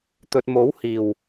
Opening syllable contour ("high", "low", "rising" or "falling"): low